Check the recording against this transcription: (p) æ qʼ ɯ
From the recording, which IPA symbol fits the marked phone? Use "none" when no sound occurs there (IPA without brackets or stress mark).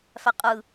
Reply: f